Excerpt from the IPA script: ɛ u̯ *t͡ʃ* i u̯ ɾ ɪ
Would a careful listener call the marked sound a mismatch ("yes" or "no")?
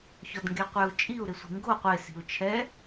yes